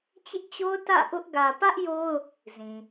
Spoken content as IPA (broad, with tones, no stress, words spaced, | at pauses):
t͡ɕɪ˦ʔt͡ɕo˦ʊ̯ tä̰˦˨ʔʊ˦ʔ ɡä˨pä˦ʔ jo˦ʊ̯ | zĩ˨